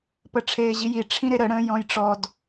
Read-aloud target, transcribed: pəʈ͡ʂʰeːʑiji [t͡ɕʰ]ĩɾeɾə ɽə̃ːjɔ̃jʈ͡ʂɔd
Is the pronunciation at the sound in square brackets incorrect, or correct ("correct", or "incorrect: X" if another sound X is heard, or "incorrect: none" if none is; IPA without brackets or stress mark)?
incorrect: ʈ͡ʂʰ